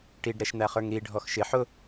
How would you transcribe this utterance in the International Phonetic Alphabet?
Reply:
ʈ i ɖ ɾ ɛ ʃ n̪ æ χ ə˞ ŋ ɾ i ɖʱ ɔ x ʃ ɪ ħ ʊ

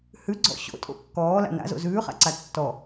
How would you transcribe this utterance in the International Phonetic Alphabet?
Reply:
h ʉ ɡ͡ǀ ɔ̰ ɕ o̰ tʼ o̰ kː ɔː l a̰ n a̰ z o̰ z ʉː χ a̰ ǀ a tː ɔ

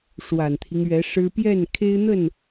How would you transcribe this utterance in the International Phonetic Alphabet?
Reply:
ʂ w a˨˩ n t̪ʰ i˦ ŋ ɥ ɛ˧˥ ʂ ɻ̩˥ p j ɛ˥˩ n kʰ e˥ ɪ̯ n̪ ə˥˩ n

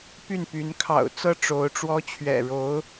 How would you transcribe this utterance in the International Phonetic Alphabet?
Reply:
p y˥˩ n p y˧˥ n kʰ ɑ̰˨˩ ʊ̯ t͡s ɤ˥˩ ʈ͡ʂ o˧˥ ʊ̯ ʈ͡ʂ w ɔ˥ t͡ɕʰ ɥ ɛ̰˨˩ ɻ o˧˥ ʊ̯

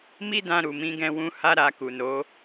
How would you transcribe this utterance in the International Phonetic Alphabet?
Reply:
m i˦ d ã˧ ɾ u˨ m ĩ˨˦ ɡ ɛ̃˧ w ũ˧ h a˦ ɾ a˧ k u˨ n o˨˦

